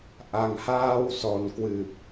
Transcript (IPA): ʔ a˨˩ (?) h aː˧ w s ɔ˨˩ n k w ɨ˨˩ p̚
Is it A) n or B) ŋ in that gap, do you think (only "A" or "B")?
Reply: B